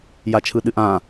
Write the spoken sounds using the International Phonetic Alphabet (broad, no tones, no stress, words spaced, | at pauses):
jat͡ʃʰɯɗɨʔã